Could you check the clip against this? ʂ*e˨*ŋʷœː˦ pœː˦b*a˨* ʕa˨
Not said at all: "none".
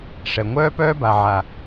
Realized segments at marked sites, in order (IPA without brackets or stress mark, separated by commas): ɛ˨, a˨